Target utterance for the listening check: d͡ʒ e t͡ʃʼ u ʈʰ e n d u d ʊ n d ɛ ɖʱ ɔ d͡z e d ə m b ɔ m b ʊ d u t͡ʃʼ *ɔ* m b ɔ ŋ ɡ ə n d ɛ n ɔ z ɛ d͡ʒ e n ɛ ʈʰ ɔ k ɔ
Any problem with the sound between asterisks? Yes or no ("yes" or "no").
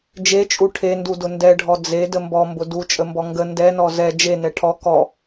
yes